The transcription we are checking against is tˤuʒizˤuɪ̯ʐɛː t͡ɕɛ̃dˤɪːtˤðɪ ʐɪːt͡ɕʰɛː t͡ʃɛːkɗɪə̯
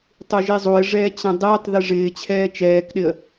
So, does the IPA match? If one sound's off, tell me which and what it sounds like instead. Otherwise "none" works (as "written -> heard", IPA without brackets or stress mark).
none